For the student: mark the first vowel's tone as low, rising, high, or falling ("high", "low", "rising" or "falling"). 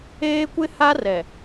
high